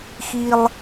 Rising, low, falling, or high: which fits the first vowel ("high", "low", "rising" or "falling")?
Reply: high